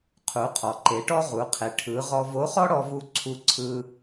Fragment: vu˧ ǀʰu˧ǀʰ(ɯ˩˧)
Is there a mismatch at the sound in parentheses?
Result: yes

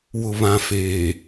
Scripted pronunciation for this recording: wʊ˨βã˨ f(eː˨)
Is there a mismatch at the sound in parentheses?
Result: no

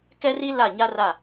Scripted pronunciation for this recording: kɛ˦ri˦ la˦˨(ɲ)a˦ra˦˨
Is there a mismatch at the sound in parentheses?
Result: no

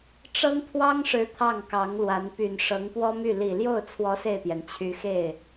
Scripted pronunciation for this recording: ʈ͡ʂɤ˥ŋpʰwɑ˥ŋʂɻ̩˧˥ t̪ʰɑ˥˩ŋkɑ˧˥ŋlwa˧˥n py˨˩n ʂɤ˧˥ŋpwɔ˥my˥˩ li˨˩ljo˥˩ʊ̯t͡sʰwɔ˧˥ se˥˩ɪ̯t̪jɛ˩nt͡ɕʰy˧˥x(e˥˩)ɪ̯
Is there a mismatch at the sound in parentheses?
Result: no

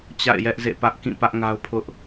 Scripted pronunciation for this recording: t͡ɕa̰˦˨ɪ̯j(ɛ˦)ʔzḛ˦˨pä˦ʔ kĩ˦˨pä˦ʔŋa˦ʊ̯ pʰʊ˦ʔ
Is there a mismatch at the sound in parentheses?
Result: no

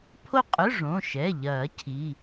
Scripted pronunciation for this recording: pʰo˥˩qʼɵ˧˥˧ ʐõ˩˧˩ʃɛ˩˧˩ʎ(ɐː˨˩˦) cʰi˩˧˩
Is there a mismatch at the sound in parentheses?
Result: no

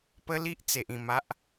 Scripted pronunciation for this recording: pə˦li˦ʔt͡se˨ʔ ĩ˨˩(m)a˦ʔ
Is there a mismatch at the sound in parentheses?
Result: no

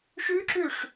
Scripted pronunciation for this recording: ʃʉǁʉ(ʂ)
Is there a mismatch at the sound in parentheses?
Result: no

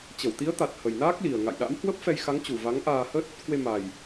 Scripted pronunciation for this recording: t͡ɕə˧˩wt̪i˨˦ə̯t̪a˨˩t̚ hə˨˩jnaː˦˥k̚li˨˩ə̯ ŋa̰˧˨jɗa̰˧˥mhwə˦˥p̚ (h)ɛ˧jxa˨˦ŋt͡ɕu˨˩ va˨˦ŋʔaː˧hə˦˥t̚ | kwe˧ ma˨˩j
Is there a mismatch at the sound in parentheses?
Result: yes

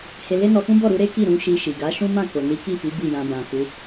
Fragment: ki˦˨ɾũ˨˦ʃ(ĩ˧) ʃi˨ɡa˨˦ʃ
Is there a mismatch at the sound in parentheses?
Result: yes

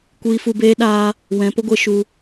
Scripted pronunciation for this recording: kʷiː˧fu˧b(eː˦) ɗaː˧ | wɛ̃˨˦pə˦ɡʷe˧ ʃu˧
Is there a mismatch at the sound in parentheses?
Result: no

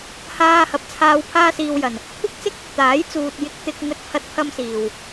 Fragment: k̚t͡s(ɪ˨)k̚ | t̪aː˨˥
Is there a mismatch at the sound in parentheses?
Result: yes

